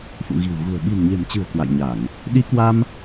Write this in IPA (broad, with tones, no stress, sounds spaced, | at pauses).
f ṵ˧˨ ɣ i̤˨˩ w ɣ ṳ˨˩ ə̯ ɓ i̤˨˩ n ɲ e̤˨˩ m t͡ɕ ɨ̤˨˩ ə̯ k w a̰˧˨ j ɲ a˧˩˨ ŋ | ɗ i˨˦ k w a˧ m